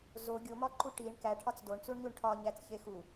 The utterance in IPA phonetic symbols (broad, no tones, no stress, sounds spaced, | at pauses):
z o ɡʲ o m ɒ ǃ u ʈ i ɳ k æ ʈʰ ɒ t͡s d o ɳ t͡s u ɳ ɲ u ɳ ʈʰ ɒ ɲ æ t͡s ç e x u